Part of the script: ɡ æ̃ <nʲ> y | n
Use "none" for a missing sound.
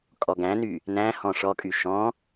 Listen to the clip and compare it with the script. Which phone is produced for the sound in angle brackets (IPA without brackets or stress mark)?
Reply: n